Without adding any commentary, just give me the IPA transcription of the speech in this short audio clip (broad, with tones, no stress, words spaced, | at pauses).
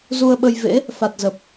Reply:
zu˧ə̯ɓə˧jvḛ˧˥ | fa˨˩t̚zə˨˩p̚